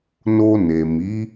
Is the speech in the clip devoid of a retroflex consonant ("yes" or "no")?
yes